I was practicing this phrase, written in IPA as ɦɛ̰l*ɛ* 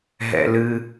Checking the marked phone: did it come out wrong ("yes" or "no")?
yes